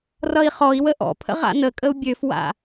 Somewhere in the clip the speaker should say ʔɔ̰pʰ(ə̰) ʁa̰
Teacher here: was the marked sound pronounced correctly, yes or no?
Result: yes